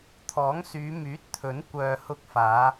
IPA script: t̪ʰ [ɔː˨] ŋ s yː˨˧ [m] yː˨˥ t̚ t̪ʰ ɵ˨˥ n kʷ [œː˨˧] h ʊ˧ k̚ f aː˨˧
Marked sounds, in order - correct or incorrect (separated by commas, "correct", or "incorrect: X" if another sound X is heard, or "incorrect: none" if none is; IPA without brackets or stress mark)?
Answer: incorrect: ɔː˨˥, correct, incorrect: œː˨